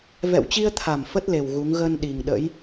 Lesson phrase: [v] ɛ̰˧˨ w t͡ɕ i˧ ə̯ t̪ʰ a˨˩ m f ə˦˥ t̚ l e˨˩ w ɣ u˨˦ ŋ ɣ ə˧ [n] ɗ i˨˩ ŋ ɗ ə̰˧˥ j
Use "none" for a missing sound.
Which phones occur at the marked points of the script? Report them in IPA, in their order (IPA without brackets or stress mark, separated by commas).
v, n